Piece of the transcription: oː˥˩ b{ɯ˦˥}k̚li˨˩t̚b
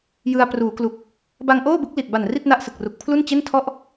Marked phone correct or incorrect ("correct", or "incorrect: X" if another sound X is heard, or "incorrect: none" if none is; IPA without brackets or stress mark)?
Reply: correct